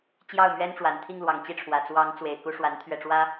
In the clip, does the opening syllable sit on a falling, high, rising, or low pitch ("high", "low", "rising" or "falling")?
falling